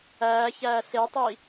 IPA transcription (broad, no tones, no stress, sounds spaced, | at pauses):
æː ç æː ɬ e tˤ i